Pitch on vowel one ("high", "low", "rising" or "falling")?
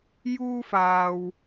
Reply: high